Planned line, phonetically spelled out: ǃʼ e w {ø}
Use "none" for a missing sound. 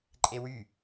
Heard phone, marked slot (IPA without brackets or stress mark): y